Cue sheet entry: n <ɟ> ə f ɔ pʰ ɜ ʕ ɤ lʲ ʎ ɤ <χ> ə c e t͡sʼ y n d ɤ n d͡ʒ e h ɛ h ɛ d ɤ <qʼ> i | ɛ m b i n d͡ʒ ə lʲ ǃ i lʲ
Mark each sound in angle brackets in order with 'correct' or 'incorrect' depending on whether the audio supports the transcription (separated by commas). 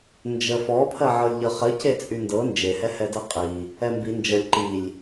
incorrect, correct, correct